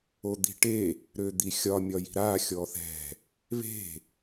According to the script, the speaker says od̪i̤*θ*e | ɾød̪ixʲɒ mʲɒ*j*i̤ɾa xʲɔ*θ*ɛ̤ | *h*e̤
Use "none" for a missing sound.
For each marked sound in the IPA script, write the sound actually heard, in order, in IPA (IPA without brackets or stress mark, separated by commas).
ʈ, j, θ, β